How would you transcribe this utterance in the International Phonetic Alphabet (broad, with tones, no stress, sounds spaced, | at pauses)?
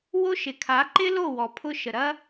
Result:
w o˦ ʃ ɪ˨ kʰ a˨˦ ǃ ɪ˦ l o˦˨ w ɔ˨ pʰ ʊ˧ ʃ ə˨ ɾ ɐ˦